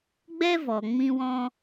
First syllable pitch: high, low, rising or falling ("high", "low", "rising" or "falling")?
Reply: high